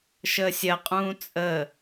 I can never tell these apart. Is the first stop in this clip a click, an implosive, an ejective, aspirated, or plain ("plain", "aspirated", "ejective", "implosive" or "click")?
ejective